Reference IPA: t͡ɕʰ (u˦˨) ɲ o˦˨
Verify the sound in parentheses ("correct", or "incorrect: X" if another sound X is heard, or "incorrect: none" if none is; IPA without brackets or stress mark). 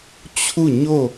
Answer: correct